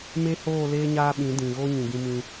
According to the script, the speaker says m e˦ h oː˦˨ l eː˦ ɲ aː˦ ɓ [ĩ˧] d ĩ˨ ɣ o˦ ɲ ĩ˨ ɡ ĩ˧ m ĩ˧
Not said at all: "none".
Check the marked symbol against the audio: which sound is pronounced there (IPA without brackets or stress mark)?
ĩ˨˦